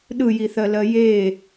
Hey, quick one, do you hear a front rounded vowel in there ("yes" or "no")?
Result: no